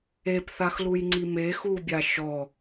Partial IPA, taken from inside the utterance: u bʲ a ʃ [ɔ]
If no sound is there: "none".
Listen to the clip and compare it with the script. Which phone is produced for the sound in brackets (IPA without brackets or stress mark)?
ɔ